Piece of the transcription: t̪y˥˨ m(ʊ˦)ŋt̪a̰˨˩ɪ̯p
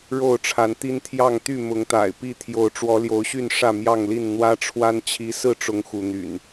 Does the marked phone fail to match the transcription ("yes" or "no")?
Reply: yes